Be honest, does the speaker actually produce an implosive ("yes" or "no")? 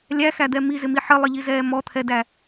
no